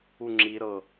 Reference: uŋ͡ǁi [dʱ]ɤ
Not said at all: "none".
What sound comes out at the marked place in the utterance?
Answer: ɾ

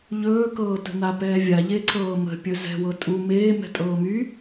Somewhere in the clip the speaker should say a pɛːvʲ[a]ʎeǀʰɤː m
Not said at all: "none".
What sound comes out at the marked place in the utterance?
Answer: a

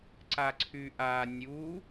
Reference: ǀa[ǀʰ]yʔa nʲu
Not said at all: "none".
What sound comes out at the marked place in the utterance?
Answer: ǀʰ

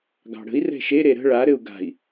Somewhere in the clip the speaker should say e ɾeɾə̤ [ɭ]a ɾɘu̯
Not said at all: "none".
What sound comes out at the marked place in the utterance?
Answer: ɭ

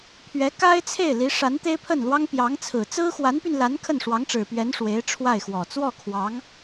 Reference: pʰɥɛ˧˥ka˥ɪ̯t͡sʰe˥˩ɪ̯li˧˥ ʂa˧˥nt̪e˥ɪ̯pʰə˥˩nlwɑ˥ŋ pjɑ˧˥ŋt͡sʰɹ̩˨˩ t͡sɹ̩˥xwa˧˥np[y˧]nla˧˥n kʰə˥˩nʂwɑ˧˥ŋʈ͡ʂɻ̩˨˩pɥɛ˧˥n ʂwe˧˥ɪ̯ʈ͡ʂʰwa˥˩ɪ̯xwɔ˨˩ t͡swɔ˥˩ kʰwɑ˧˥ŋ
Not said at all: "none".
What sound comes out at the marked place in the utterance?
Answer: y˧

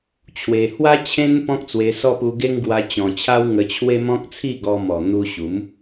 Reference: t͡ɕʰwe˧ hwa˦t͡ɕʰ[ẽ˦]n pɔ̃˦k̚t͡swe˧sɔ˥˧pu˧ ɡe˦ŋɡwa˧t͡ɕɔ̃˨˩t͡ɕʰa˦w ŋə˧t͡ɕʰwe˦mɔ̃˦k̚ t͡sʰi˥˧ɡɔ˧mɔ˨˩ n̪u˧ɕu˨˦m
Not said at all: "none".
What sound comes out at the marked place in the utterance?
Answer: ẽ˦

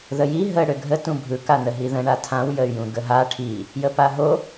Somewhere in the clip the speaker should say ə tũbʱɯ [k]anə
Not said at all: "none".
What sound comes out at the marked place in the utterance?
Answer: k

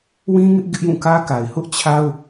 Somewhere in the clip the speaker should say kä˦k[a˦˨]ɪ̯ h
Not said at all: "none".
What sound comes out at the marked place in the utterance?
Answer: a˨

